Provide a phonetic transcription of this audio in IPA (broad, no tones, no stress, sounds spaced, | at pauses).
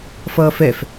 f ʌː f ɛ f